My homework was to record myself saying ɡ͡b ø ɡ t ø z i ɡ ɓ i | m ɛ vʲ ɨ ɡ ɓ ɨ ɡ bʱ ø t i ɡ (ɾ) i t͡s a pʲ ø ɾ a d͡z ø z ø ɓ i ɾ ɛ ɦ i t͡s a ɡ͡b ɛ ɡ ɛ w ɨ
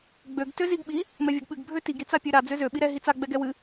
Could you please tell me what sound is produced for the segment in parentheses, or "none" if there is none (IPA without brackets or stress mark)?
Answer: ɾ